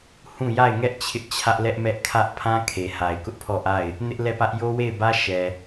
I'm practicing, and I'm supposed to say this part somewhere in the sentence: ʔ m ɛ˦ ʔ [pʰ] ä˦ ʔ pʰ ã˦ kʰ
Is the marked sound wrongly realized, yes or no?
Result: yes